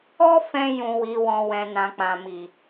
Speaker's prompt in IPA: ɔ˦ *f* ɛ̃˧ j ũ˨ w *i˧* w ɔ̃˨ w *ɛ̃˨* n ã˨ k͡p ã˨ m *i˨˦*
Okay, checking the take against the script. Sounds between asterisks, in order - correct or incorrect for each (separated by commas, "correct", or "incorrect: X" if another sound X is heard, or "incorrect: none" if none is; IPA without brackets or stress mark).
correct, incorrect: i˨, correct, incorrect: i˨